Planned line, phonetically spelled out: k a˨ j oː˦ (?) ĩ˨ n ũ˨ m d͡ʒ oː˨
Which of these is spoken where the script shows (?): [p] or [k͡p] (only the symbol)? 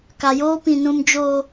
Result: p